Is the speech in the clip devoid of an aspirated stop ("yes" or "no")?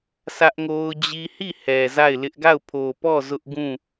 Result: no